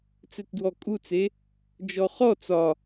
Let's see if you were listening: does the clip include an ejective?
yes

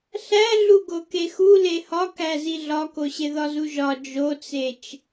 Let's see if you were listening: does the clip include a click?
no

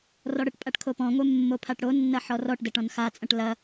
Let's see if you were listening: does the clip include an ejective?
yes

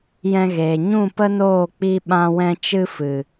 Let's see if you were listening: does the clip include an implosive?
yes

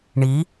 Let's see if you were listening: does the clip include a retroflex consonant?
yes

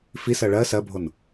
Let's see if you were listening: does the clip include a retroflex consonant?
yes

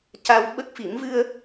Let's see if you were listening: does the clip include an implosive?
yes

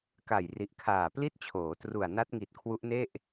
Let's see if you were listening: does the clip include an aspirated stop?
yes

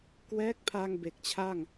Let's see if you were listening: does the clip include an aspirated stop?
yes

